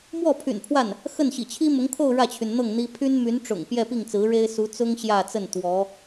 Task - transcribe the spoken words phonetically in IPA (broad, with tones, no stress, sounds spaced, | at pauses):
m w ɔ˥˩ pʰ y̰˨˩ n pʰ w a˥˩ n | x ə˥˩ n ɕ ḭ˨˩ t͡ɕʰ i˥ m ʊ˧˥ ŋ kʰ o˥˧ ʊ̯ ɻ ä˥˩ t͡ɕʰ y˩ n n̪ ɤ˥˩ ŋ n̪ i˥ pʰ y˥ n m y˧˥ n ʈ͡ʂ ʊ̰˨˩ ŋ p j ɛ˥˧ p i˥˩ ŋ t͡s ɹ̩˧˥ ɻ e˥ ɪ̯ s u˧˥ t͡s ʊ˥ ŋ ɕ j ä˥˧ t͡s ə˥˩ n t̪ w ɔ˧˥